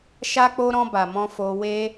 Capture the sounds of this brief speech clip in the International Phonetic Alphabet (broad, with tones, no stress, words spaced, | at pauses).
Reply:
ʃa˧k͡po˧ ɾɔ̃˧ba˨ mɔ̃˧fo˧we˦